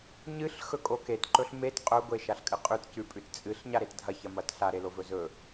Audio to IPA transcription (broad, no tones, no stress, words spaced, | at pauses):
ɲɨɬ xɵkʼoket ǃɵɬmet qʼɵ ɡʷeʃaɬkʼɨqʼʉt cʉpʼʉtt͡sʼɨɬ ɲaɾetdʱɐ çɐmɐtɬa ɾelovɵzɵ